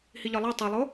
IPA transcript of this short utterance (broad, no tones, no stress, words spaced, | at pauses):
hiʎɒlˠæ tˤælˠo